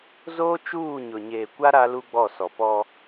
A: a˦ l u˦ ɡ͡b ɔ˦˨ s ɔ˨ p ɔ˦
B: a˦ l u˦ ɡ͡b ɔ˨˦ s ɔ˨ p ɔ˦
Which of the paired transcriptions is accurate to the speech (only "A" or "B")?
A